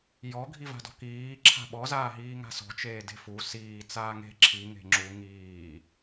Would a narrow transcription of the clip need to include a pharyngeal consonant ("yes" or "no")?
no